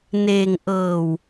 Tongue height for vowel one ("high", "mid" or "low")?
mid